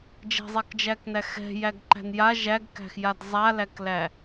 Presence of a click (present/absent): present